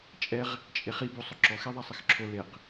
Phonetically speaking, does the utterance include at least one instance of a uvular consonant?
yes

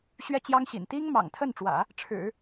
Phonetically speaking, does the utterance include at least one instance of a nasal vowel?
no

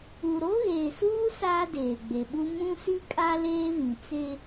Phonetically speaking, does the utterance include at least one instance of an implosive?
yes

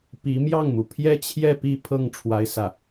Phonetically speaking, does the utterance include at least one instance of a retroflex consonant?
yes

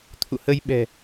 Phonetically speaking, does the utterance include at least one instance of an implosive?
yes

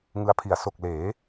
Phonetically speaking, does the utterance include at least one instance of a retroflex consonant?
no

